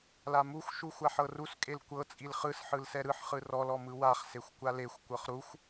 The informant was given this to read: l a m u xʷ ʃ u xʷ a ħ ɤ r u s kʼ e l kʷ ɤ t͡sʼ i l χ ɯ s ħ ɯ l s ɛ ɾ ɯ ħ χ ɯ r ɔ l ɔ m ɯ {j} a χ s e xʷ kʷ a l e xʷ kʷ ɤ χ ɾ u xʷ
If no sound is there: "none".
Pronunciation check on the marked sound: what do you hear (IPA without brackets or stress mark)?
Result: w